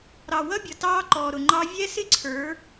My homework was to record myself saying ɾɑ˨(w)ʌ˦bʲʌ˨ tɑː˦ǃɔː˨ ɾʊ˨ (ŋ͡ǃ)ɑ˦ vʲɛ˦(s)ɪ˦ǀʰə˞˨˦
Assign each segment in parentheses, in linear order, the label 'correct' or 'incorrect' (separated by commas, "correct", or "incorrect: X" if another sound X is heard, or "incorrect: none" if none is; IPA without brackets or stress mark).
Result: correct, correct, correct